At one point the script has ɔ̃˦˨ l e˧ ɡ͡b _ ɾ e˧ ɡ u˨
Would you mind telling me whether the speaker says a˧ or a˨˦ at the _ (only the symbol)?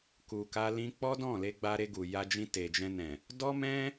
a˧